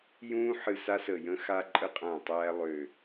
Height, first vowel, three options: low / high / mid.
high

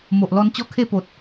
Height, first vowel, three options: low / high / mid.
mid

